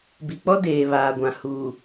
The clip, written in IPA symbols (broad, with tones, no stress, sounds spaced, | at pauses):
b i˨ k͡p ɔ˦ d eː˨ β aː˨ ɡʷ ã˨ h uː˨